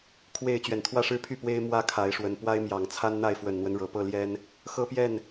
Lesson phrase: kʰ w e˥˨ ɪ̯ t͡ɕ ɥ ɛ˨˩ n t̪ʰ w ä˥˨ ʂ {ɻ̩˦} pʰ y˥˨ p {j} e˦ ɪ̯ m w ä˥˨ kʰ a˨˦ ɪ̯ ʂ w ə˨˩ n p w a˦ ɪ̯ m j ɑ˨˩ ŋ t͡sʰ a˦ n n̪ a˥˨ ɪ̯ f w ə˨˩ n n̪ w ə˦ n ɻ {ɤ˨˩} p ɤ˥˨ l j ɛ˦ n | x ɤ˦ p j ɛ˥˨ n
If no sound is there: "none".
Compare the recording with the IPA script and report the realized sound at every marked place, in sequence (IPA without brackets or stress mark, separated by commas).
ɻ̩˦, w, ɤ˨˩